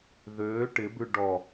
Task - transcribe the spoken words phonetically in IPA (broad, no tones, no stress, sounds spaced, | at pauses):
ð øː ʈ ɪ b ʉ ɖ ɔ